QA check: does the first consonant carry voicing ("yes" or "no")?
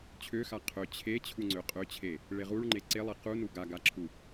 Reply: no